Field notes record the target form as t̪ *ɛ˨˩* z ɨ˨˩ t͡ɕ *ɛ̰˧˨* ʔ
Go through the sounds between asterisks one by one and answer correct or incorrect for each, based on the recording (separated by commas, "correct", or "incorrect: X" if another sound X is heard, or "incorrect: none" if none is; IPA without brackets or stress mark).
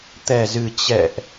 correct, correct